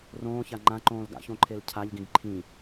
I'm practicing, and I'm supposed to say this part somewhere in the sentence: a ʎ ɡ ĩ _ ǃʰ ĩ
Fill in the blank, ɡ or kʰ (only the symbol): ɡ